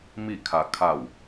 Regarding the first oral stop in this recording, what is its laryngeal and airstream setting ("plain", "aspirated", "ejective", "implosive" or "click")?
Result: aspirated